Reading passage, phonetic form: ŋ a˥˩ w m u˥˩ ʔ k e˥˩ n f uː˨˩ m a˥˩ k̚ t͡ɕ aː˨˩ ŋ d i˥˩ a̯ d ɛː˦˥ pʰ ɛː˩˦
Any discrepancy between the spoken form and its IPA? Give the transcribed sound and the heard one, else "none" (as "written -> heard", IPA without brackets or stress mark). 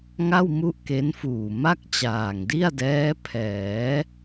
e˥˩ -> e˦˥